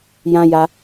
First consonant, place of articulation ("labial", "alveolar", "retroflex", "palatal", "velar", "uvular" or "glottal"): palatal